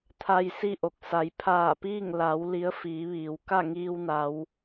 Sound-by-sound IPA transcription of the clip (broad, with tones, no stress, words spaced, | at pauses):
t̪ʰa˧jsi˥˨ʔo˧˩k̚ sa˩˧jpʰaː˧˩piː˥˨ŋ la˩˧w li˧˥ə̯fiː˩˧ ʋiː˩w ka˥˨ŋiː˧wna˩˧w